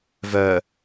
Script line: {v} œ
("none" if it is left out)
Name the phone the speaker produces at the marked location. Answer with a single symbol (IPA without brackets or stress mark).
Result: v